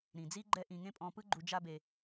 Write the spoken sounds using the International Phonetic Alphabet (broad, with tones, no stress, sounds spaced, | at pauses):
ɾ ĩ˩ d͡z i˥ ɡ͡ǃ ɛ˦ ʔ ĩ˨ ŋ ẽ˥ pʼ ɔ̃˨ p ɯ˦ ɡ͡ǃ u˨ d͡ʒ a˥ b e˨